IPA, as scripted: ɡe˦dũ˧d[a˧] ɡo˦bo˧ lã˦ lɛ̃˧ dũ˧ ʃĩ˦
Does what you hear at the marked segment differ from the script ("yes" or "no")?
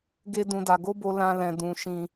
no